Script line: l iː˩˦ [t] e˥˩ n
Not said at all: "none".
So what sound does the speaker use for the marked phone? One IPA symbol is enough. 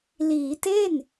t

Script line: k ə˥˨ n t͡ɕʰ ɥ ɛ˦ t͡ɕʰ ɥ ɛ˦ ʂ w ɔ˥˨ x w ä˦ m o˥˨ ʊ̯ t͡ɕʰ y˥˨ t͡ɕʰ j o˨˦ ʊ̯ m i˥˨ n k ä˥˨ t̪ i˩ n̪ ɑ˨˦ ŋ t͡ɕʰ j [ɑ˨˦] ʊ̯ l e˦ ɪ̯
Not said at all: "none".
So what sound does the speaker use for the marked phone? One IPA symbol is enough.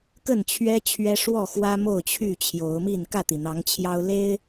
ɑ˦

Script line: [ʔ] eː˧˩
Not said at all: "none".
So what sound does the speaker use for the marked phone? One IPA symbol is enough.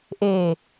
ʔ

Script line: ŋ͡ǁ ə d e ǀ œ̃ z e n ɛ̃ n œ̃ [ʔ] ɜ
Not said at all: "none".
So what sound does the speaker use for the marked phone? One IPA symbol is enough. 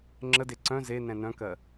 k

